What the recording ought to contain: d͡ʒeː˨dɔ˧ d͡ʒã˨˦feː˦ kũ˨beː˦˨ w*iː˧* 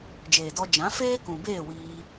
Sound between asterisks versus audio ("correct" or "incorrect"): correct